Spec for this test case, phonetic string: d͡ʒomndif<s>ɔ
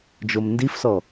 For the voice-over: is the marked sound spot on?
yes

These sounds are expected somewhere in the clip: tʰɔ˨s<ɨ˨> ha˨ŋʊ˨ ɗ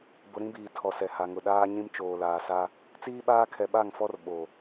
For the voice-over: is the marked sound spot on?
no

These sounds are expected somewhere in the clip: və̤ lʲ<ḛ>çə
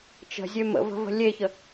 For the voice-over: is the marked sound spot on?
no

